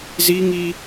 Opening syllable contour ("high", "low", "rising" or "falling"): high